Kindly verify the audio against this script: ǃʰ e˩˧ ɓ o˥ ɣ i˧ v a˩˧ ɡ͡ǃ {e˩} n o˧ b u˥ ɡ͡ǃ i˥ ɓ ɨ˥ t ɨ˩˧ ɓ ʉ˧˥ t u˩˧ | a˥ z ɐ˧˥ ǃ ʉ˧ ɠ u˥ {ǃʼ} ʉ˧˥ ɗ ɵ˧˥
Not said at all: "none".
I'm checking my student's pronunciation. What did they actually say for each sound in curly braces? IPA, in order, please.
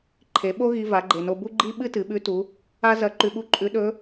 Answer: e˩, ǃʼ

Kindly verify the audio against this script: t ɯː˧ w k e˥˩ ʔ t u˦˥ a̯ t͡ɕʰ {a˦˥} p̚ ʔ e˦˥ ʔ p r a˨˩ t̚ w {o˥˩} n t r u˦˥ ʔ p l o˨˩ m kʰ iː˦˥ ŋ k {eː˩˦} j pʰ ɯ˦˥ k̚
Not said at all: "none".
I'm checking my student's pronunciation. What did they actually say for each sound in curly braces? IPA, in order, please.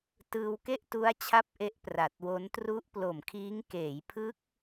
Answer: a˦˥, o˦˥, eː˩˦

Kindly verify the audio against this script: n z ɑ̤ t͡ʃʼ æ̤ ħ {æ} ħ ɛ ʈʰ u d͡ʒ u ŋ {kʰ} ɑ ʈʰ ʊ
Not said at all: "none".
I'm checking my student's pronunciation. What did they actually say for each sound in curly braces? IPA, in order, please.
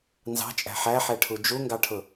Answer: æ, ɡ

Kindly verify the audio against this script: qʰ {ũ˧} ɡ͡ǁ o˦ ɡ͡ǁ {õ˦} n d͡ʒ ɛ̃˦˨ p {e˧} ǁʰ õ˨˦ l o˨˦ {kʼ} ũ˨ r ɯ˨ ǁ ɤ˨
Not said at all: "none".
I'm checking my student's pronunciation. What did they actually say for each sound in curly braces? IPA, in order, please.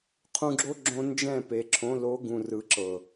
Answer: ũ˧, õ˧, e˨, ɡ

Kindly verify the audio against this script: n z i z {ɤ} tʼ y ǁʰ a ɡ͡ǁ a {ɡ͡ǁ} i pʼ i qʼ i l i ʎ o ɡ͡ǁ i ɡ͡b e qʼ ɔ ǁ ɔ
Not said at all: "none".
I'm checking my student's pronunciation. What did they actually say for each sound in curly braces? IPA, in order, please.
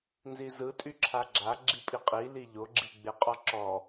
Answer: ɯ, ɡ͡ǁ

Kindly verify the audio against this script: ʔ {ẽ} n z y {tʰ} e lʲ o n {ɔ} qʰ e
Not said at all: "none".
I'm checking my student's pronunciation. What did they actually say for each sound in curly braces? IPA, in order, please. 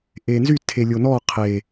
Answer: e, tʰ, ɔ

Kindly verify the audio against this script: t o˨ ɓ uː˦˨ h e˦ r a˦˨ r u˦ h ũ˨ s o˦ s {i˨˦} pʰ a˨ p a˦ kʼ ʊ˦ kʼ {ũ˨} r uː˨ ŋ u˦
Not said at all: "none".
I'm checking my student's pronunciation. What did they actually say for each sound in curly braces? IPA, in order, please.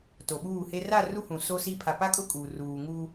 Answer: i˦, u˨

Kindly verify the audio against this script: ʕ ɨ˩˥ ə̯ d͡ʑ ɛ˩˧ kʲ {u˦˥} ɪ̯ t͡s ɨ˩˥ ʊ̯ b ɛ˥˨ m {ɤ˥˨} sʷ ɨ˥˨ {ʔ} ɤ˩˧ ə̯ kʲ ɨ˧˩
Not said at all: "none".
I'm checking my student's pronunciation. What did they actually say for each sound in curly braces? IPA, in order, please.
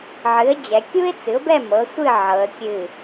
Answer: u˦˥, ɤ˩˥, ʕ

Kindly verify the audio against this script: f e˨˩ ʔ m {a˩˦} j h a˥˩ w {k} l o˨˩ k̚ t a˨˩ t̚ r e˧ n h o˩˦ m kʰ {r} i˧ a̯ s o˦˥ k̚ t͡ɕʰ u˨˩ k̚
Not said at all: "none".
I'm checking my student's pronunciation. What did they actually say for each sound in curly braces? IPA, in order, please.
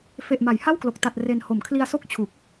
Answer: a˩˦, k, l

